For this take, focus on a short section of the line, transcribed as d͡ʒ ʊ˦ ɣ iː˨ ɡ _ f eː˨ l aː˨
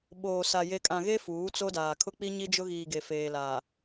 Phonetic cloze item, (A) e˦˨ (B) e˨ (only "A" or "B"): B